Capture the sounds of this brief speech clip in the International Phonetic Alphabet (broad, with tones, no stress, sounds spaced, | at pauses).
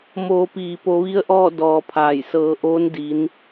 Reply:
m oː˩˧ p iː˩ p o˩˧ ʋ i˧˥ ə̯ ʔ ɔː˥˨ d ɔː˧ pʰ aː˧˩ j s ɤː˩˧ ʔ oː˧˥ n d i˧˥ n